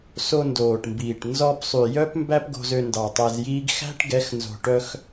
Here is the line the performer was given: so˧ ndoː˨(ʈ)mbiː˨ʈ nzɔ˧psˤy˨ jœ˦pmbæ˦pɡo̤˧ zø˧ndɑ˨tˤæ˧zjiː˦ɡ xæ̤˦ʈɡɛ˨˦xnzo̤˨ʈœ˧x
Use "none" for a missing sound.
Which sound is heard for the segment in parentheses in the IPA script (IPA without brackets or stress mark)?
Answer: ʈ